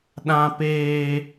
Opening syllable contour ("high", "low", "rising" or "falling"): high